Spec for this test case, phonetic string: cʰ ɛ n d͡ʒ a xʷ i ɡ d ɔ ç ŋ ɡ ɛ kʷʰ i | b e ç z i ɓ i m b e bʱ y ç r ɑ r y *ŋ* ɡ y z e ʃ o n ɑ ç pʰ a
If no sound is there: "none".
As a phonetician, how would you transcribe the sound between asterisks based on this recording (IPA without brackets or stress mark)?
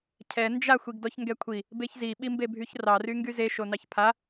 ŋ